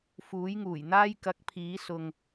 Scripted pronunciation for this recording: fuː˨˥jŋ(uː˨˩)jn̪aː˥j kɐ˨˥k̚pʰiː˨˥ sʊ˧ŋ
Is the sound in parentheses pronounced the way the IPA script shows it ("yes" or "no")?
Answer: yes